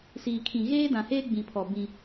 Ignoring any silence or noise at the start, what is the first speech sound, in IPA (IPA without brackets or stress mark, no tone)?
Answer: s